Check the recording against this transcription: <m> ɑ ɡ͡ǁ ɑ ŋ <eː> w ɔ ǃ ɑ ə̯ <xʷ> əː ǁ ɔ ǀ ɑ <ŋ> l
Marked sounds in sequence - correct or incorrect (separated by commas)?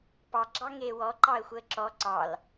incorrect, correct, correct, incorrect